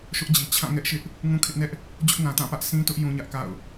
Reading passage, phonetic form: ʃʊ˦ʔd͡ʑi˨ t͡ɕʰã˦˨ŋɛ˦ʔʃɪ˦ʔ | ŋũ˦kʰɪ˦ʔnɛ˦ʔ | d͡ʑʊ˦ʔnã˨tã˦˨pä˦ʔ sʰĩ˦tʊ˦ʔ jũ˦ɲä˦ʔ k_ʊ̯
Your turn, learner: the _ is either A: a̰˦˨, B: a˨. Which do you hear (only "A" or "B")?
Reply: A